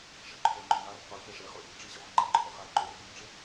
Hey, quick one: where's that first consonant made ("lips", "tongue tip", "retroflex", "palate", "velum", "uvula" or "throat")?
retroflex